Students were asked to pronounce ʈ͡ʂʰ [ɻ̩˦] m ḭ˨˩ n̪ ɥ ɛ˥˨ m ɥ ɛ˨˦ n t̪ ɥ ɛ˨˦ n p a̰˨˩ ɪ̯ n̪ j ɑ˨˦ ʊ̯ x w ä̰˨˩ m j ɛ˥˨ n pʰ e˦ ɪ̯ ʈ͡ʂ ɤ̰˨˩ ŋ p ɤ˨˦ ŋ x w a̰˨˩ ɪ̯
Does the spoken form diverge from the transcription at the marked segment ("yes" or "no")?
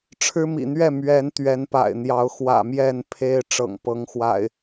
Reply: no